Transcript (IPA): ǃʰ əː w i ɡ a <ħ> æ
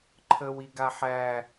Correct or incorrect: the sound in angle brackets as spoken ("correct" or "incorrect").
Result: correct